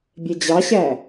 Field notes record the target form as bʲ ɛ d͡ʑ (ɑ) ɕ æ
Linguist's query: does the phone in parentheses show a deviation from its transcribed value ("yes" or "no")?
no